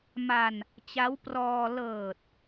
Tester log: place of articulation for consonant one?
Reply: labial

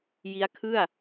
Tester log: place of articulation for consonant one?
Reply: palatal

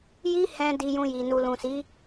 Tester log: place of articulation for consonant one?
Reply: palatal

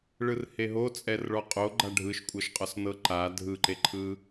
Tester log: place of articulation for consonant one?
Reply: retroflex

